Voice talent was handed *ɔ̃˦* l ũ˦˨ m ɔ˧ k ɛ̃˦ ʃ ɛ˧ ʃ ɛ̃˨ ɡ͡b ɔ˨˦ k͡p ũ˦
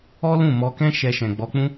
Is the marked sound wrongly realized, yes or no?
yes